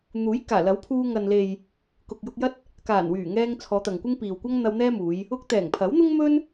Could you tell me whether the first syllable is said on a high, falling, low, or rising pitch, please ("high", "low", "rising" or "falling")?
rising